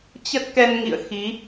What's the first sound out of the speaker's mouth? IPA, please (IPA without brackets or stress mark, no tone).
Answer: t͡ɕ